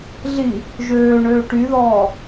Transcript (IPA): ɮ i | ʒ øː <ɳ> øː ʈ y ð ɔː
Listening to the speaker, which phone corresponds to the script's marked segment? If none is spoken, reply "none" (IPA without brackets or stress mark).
ɳ